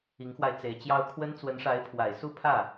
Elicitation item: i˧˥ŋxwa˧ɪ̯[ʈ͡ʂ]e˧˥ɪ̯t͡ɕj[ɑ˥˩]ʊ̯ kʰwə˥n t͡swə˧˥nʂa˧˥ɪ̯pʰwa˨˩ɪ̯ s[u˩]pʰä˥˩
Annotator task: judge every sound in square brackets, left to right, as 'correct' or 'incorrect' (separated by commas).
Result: incorrect, incorrect, incorrect